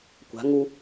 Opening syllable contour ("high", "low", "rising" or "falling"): rising